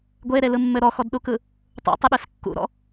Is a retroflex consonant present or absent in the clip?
absent